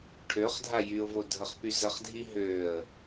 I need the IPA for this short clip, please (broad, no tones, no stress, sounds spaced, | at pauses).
ʈʰ ø χ dʱ a j y ʊ̯ v o dʱ ə χ p y z ə χ dʱ i ɦ ø ə̯